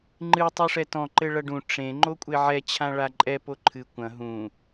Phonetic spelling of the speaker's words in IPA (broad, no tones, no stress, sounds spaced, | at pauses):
ŋ͡ǃ ɨ tˤ u ʂ ɛ t ɔ̃ ǃ ɘ ɭ ɐ ɖ ũ ʈ͡ʂ ẽ ŋ͡ǃ o kʷʼ e ʕ ɛ t͡ɕʰ ã ɭ a ǃʼ ɛ p o ǃʰ ɨ kʷ ɐ̃ ɦ ũ